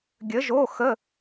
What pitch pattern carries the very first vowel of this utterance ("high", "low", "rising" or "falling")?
rising